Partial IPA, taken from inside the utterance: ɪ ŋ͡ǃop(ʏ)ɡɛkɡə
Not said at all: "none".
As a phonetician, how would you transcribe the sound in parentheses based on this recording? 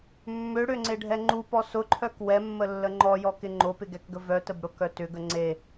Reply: ɪ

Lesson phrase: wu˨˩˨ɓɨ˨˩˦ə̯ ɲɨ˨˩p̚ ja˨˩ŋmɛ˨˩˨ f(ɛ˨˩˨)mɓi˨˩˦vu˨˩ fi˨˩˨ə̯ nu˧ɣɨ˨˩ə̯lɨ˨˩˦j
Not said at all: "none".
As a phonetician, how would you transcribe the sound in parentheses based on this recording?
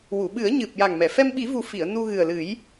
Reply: ɛ˧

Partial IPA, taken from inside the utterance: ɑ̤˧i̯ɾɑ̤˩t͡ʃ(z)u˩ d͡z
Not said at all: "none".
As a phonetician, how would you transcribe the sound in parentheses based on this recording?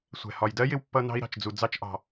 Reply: d͡z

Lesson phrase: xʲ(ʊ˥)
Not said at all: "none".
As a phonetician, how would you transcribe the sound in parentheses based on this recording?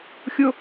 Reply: ʊ˥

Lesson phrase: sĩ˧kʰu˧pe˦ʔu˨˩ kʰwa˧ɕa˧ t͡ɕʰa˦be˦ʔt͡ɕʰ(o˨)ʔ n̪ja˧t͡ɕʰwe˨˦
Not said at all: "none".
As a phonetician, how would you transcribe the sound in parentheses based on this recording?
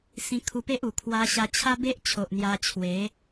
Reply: o˨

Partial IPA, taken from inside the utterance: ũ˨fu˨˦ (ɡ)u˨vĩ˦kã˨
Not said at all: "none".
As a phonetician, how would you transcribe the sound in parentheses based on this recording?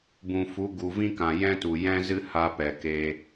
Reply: ɡ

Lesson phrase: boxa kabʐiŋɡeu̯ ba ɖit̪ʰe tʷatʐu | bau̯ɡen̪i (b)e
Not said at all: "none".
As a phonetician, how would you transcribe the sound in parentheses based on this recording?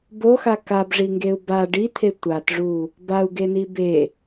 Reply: b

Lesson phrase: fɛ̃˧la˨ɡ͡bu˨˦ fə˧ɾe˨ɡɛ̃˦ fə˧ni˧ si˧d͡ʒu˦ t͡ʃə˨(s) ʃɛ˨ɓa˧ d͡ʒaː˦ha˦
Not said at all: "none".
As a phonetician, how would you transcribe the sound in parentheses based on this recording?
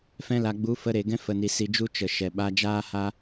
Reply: none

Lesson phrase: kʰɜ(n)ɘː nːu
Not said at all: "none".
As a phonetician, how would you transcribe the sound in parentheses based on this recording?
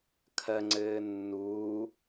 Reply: ŋ͡ǀ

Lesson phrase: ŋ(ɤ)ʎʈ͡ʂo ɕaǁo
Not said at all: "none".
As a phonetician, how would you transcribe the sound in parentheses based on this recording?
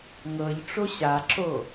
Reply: ɤ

